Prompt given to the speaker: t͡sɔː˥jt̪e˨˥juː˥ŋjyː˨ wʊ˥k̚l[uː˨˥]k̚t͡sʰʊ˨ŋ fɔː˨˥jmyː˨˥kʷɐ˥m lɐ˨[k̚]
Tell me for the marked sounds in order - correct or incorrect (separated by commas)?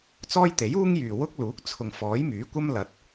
correct, incorrect